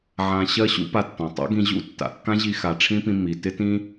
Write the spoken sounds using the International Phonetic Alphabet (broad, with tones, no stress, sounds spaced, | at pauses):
ʕ ã˧ ɕ ɜ˥ ɕ ṵ˥ p a˧ tː ɔ̃˩ tˤ a̰˥ ɡ ĩ˧ ʑ ṵ˥ tː a̰˩ kː ã˥ ʑ i˧ x a˩ ʈ͡ʂʰ ĩ˥ p ĩ˧ m i˩ t ɪ˥ t ĩ˥